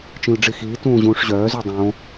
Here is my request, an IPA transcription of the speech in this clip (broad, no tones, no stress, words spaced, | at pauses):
t͡ʃĩlɖ͡ʐixiː tũːʑũːʂʑœː zydˤõ